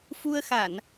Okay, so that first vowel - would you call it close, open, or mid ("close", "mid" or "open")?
close